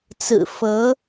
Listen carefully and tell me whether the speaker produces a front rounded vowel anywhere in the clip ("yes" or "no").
no